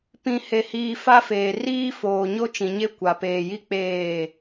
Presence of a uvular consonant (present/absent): absent